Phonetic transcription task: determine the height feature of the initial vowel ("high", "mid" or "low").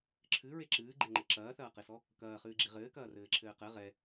high